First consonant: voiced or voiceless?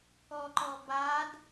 voiceless